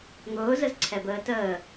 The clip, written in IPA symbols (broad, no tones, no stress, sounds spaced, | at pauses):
ŋ ʊː z ə z ǀʰ ɛ b əː t əː